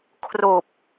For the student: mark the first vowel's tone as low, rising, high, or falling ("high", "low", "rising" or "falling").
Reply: low